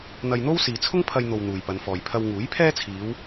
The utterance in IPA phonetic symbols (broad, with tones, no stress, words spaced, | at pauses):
n̪ɐ˧jn̪o˥w siː˨t͡sʰʊ˥ŋpʰɐ˧jn̪o˨w n̪uː˨jpɐ˨˧nfɔː˨j pʰɐ˧wŋuː˨˥jpʰɛː˥t͡sʰiː˨˧w